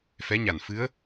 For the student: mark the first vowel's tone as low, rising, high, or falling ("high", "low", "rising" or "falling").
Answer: rising